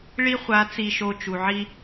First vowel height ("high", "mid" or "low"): high